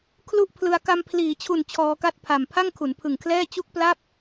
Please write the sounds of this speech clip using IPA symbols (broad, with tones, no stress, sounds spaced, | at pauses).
kʰ l u˥˩ ʔ pʰ l ɯ˧ a̯ k a˧ m pʰ l iː˩˦ t͡ɕʰ u˨˩ n t͡ɕʰ ɔː˧ k a˥˩ t̚ pʰ a˨˩ m pʰ a˥˩ ŋ kʰ u˩˦ n pʰ ɯ˨˩ ŋ kʰ l ɛː˥˩ t͡ɕ u˥˩ k̚ p l a˥˩ p̚